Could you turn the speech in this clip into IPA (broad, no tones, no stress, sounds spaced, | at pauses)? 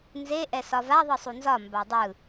n z e ʔ ɛ s ɒ v a ðˤ ɯ sˤ u n z ɒ m b a dˤ ɯ